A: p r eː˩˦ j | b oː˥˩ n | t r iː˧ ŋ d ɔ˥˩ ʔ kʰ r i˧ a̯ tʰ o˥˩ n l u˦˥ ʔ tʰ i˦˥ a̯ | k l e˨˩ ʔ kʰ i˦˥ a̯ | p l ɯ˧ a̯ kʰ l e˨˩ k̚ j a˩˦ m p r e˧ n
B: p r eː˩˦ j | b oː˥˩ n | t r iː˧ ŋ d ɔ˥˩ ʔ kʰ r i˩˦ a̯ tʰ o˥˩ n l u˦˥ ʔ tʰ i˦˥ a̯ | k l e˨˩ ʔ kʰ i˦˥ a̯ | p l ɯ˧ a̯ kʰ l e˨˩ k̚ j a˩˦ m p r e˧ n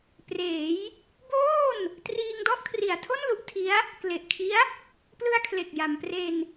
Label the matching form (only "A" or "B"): B